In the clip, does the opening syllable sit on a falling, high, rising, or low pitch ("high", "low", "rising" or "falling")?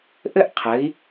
high